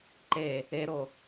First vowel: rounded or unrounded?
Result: unrounded